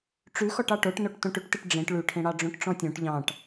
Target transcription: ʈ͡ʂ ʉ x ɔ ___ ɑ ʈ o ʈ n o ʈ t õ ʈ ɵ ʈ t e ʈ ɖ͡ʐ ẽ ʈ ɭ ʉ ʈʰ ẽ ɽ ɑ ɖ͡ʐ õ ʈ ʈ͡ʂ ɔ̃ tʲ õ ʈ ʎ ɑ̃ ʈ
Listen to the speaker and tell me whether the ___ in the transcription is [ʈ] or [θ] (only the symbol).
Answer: ʈ